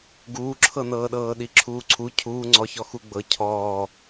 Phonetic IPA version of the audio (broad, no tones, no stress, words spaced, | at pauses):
ɡuːǁʰɤnɤːɗɤː ɗiǁʰuːǀʰu cʰuːŋ͡ǀɔçɔ xuɡ͡bɤ cʰɔː